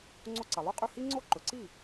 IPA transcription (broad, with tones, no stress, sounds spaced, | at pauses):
ŋ͡ǀ o˧ ǀ ɐ˩ lˠ ɵ˥˩ qʼ ʉ˥˩ h i˥ ŋ͡ǀ o˥ ǃ ɵ˩ ǀ i˥˩